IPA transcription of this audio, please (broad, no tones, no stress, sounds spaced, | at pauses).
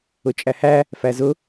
ʊ t͡ʃʼ æ h æ | f æ z ʊ